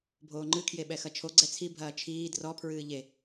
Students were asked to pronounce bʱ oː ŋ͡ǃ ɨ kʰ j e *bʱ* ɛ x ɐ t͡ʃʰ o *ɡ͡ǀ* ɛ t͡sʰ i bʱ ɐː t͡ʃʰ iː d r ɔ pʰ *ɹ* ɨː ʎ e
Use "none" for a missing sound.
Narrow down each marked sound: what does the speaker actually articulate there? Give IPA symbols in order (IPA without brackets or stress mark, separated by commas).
ɓ, ɡ͡ǀ, ɹ